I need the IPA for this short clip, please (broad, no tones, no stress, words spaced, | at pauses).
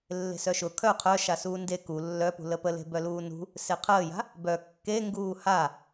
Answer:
lːe̤sœʃʊ kʰœ qʰœ ʃasuːnde ku lːœpṳ ləpəle̤ bœluːnṳ | seqʰəːja̤ | bœ kːe ŋɡuːha